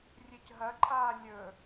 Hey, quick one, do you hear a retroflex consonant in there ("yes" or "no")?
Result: no